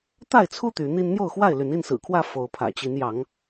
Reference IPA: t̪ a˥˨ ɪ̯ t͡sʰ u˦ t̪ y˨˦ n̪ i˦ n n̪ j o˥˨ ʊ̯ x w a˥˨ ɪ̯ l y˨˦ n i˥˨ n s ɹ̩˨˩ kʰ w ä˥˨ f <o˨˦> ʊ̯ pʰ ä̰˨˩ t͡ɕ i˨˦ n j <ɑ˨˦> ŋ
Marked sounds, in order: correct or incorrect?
correct, correct

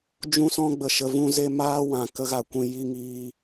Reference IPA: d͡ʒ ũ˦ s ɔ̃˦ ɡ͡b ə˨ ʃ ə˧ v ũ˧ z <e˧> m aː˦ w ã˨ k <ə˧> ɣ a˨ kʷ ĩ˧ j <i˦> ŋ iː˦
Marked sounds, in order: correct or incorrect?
correct, correct, correct

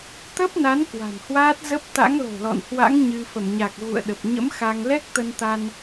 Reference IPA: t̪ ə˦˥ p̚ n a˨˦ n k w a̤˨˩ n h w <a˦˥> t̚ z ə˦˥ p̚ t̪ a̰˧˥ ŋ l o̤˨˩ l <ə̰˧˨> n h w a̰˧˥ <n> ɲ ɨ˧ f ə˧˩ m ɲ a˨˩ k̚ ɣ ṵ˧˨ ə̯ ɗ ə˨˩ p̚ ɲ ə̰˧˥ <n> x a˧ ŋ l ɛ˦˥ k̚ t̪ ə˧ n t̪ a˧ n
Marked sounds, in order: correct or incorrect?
incorrect, incorrect, incorrect, incorrect

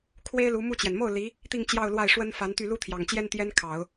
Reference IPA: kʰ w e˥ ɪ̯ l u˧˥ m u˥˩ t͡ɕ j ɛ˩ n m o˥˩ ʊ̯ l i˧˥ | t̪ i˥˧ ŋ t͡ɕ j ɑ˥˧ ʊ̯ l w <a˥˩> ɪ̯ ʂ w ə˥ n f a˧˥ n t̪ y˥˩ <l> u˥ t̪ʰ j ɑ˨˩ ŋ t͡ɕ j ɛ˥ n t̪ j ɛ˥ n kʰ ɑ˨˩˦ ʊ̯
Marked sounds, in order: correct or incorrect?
correct, correct

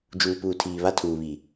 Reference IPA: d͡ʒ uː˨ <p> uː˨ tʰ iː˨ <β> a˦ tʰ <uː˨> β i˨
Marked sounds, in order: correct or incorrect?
correct, correct, correct

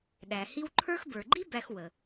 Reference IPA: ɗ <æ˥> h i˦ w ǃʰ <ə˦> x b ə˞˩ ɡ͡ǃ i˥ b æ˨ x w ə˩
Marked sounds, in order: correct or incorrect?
incorrect, incorrect

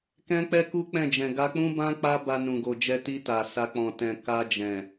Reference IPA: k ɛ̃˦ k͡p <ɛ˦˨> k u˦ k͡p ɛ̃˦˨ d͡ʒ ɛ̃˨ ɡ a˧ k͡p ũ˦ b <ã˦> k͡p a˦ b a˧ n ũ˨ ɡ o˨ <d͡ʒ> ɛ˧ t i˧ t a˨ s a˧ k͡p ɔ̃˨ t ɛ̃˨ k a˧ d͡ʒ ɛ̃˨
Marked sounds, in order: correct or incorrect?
incorrect, correct, correct

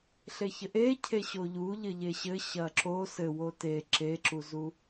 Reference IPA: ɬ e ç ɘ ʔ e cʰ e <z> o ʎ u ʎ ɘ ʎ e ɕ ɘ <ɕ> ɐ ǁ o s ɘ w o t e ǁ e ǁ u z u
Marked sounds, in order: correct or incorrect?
incorrect, correct

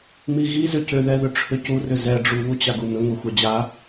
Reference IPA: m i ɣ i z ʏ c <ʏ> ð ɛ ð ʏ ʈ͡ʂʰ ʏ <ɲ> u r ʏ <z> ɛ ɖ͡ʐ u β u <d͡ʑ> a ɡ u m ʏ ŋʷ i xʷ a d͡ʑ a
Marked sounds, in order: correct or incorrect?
correct, incorrect, correct, incorrect

